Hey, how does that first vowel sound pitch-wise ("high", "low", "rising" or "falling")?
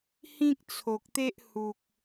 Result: high